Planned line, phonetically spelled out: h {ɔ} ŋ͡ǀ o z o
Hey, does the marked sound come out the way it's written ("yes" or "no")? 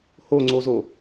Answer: no